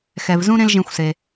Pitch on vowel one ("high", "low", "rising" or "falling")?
low